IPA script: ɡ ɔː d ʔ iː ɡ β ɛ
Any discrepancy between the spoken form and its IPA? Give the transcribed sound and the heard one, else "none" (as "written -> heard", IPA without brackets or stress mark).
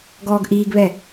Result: d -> ɡ